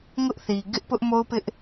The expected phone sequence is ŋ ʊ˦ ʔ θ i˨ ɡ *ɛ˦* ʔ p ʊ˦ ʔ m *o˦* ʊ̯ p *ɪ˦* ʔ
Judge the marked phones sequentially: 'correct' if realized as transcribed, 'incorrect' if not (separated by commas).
incorrect, correct, correct